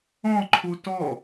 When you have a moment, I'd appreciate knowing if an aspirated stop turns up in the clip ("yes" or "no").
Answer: yes